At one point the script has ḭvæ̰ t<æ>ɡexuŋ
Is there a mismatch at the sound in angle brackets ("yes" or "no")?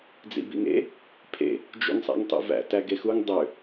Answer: no